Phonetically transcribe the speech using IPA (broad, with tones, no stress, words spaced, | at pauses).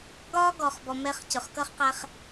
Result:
ɡɒː˦ɡɔ˨χbɔ˨ mɛ˦χ cʊ˨χkʌ˦χqæ˦χ